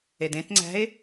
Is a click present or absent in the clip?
present